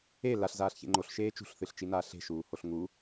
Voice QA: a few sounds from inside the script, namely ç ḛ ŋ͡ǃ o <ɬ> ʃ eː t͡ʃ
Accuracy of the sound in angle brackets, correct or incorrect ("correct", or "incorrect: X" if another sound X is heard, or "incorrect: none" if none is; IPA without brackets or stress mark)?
correct